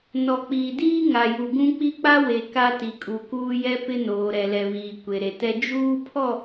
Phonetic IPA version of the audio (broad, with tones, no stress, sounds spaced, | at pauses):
n ɔ˨ k͡p iː˨ d iː˦ ŋ a˨ j u˨ ɡ ũ˦ k͡p i˦ k͡p a˦ w e˨ k a˦ t i˨ kʼ u˨ k uː˦ j ɛ˦ p ɪ˦ n oː˨ ɾ ɛ˨ l ɛ˨ β iː˨ kʷ e˨ ɾ e˨ t ɛ˦ d͡ʒ uː˦ pʰ ɔ˦˨